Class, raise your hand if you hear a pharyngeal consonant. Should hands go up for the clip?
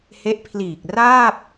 no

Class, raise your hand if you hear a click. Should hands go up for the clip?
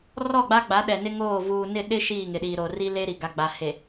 no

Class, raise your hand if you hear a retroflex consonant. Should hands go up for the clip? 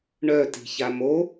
yes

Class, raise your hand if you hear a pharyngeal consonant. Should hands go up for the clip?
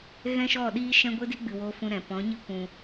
no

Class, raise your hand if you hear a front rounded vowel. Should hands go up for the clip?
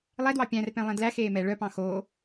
yes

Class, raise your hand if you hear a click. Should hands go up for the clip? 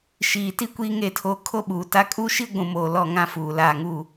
no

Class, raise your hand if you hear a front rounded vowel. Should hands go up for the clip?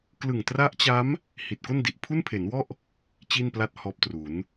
no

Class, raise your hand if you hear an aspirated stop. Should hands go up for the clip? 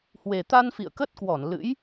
no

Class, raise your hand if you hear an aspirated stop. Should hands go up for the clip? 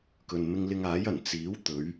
no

